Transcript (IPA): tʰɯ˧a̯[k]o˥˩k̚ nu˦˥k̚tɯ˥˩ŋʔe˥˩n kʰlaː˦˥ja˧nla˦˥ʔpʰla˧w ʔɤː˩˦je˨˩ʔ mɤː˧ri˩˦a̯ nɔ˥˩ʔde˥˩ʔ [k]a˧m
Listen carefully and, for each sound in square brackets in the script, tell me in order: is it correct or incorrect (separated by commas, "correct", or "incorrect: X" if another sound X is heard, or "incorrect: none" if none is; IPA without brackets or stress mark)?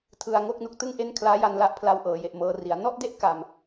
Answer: incorrect: ŋ, correct